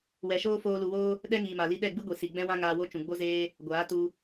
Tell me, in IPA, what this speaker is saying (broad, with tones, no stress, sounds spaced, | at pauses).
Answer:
w ɛ˨ ʃ oː˦ f oː˧ l u˨ w oː˦ | ɗ ɛ˦ ŋ iː˨ m a˨ l i˧ ɗ ɛ˦˨ ɡ͡b ɨ˦ ɡʷ i˨ s i˨ ɡ͡b ɛ̃˦ w ã˦ ŋ aː˧ w o˦ t͡ʃ ũ˨ ɡ͡b o˦ z eː˦ | ɡʷ aː˨˦ t u˧